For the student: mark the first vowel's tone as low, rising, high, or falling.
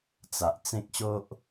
low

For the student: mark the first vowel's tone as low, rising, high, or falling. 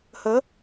rising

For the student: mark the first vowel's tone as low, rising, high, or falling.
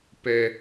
low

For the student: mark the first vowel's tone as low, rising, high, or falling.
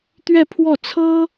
falling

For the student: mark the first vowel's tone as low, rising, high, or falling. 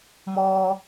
low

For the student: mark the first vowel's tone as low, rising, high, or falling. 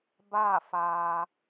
falling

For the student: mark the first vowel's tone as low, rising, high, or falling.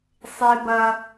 high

